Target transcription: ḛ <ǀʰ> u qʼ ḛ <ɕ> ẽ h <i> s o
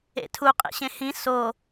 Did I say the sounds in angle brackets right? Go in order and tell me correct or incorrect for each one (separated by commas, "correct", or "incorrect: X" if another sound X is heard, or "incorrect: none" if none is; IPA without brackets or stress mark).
incorrect: tʰ, correct, incorrect: ĩ